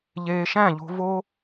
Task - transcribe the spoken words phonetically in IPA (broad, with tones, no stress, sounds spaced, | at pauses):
ʎ eː˧ ʃ æ̃˦˨ ʎ o̤˧ v o˦